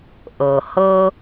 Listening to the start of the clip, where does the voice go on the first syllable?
low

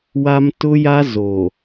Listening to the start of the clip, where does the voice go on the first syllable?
high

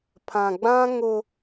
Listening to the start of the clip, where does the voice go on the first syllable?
low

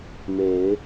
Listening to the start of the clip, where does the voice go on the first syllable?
rising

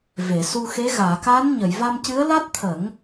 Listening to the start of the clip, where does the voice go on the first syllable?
low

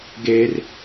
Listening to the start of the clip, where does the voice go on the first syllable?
high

